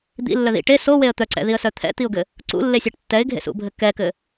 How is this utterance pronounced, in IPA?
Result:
d̪ ḭ lː œ ð ḭ ʈ e s o w e ə̯ t̪ œ ǀ ɛ̰ ð i ə̯ s œ t̪ʰ ɛ̰ t̪ i ʊ̯ ɡ ɘ | ǀ ṵ lː e sʲ ɜ ʈ tː ɛ ɪ̯ ɡʱ ḛ s ṵ bʱ ɘ k ɛ k ɘ

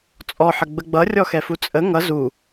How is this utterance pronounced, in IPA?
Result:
t͡sʼ ɔ ħ ə ɡ͡b ə ɡ͡b ʌ rʲ ɔ x ɛ f u t͡sʼ ə ŋ ʌ z u

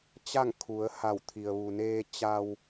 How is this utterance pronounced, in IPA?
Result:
t͡ɕ a˥˨ ŋ kʰ u˩˧ ə̯ h a˧˩ w t̪ʰ i˩ ə̯ ʋ u˩ n eː˧ t͡ɕ a˧ w

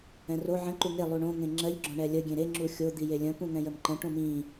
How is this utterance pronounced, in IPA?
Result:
ɛ̃ r o ʕ ə̃ ǃ u ŋ e lˠ u ɳ õ ŋ ẽ ŋ͡ǁ ɜ ʎ ɡ͡ǁ õ ɳ ɛ lʲ ə ɡʲ ẽ ɾ e ŋ͡ǁ u xʲ o d̪ i j e lʲ ə̃ p ũ ŋ ɛ̃ j ə m ǃ ə̃ ʈ õ m ĩ

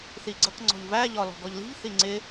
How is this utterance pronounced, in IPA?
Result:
θ i ɡ͡ǀ ʌ k ŋ͡ǀ ɔ̤ ʎ v æ ʎ ɒ l ɔ̤ ɡ ɔ ʎ l i̤ ʎ θ i ŋ͡ǀ ɪ

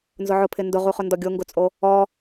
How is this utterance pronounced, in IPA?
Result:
n z ʊ ʕ ʊ pʰ ɪ n d ʊ ʁ u χ ʊ n d ɔ ɡʲ o ŋ ɡ ʊ t͡sʼ o | ɔ

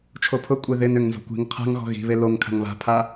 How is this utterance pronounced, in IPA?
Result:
t͡ʃʰ o pʰ ʊ kʷʼ e ð ɪ n ʏ ŋ n z o̤ kʷ i̤ ŋ qʰ a̤ ŋ ɣ ɔ̤ ɣ i̤ β e l o ŋ kʰ a̤ ŋ β a̤ pʰ a

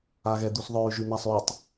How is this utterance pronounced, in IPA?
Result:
a ɣ ɛ d̪ u s ðˤ œ y̯ ʒ y n̪ a sˤ y tˤ

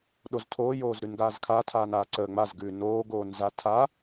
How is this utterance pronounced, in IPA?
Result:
ɗ o z tʰ oː j oː z ɾ ʉ n ɡ aː z kʰ a tʰ aː n aː ǀ əː ŋ͡m a z ɡ ʉː n oː ɡ oː n z a tʰ a

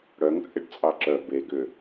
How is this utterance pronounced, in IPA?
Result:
ɽ œ ŋ t͡sʼ ɪ ɖ t͡sʼ ɑ ǁ œ b e ɡ ʏ

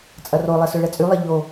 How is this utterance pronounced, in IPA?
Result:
t͡sʼ ɐ r o lˠ ɛ s ø ɭ ɛ t͡sʼ y lˠ ɐ ʎ o

